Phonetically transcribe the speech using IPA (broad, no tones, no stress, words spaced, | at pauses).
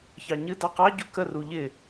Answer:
çɑɲɨ dɑqɑ ɟukə ruʎɪ